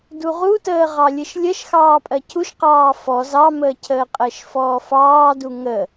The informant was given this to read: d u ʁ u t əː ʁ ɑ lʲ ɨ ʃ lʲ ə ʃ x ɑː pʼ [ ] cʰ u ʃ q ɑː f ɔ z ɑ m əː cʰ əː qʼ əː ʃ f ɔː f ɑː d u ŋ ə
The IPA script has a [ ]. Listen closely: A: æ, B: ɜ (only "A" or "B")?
B